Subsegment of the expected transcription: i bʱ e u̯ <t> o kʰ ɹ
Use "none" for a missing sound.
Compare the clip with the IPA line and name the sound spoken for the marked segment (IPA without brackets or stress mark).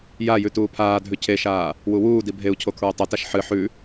cʰ